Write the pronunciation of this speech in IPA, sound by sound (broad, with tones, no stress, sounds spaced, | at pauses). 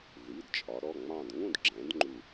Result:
ð i˩˧˩ d t͡ʃʼ ɒ˩˧ ɾ ɔ˩˧˩ ŋ͡m ɑ̃˦˨ d ŋ ũ˦˨ d ɡ͡ǁ ɛ̃˩˧ d ŋ͡ǃ u˦˨